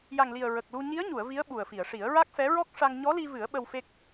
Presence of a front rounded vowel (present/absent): absent